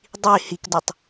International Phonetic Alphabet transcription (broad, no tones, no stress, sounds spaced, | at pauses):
dˤ i h i k d u tˤ